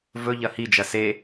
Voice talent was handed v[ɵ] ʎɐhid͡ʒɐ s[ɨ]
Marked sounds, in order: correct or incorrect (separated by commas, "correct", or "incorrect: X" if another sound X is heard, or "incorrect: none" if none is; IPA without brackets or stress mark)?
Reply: correct, incorrect: e